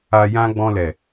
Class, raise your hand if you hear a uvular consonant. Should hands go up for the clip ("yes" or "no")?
no